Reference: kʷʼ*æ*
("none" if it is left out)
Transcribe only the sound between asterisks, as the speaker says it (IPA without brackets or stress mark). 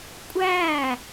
æ